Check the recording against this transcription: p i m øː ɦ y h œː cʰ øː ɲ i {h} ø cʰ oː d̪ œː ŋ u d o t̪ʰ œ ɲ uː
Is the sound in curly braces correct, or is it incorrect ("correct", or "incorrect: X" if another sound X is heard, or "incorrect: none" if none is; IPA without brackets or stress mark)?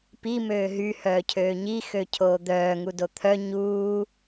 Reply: incorrect: x